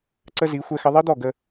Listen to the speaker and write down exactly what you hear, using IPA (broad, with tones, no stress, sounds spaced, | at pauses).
ǀ ə˦ z i˨˦ xʷ ɛ˦ x ə˦ ðˤ i˦ d̪ ɔ˦˨ ɡ ə˦